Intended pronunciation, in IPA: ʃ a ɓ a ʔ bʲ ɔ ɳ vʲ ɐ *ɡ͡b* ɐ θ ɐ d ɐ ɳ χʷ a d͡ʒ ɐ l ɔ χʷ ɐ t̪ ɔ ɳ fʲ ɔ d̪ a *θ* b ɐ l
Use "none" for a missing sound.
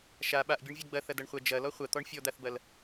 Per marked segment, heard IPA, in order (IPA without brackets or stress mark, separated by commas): ɡ͡b, θ